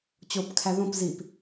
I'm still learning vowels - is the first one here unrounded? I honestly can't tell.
no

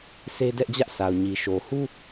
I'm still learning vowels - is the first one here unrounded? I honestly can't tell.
yes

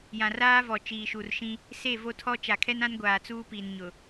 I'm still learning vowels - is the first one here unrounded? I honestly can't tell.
yes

